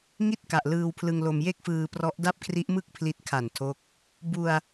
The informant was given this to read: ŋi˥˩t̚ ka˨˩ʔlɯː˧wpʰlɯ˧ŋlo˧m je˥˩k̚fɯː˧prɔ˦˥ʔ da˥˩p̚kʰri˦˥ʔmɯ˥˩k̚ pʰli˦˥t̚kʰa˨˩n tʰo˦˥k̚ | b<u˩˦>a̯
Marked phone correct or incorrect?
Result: incorrect